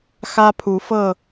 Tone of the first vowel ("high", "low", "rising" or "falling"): high